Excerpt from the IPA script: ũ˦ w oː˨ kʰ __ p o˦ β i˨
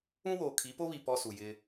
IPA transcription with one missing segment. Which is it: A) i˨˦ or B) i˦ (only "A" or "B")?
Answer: A